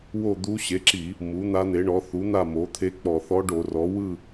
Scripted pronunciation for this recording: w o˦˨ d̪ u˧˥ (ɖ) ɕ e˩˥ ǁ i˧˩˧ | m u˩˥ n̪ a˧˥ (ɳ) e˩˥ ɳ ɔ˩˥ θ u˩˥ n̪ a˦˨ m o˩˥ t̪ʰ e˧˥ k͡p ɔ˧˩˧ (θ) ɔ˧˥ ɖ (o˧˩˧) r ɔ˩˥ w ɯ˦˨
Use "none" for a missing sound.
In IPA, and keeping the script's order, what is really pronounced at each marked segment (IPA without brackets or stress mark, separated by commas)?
none, n̪, θ, o˧˩˧